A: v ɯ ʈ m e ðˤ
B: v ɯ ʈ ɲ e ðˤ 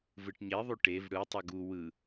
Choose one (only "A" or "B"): B